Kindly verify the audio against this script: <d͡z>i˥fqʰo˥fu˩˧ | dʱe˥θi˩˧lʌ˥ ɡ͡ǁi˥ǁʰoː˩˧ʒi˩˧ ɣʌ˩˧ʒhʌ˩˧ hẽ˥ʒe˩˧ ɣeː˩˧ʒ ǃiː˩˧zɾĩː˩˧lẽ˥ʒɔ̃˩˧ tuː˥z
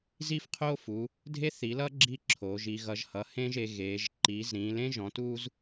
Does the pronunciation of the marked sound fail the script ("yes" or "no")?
yes